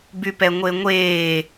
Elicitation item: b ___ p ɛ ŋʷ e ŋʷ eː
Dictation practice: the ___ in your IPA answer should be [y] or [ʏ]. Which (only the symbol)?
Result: y